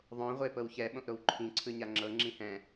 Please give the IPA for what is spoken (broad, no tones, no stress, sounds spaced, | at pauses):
ðˤ õ ʁʷ e p ɤ w ç ɛ ɓ õ ʔ ɾ o w ǃʰ ĩ ǀʰ ɯ ɲ a ŋ͡ǁ ɤ ŋ͡ǁ ĩ h ɛ̃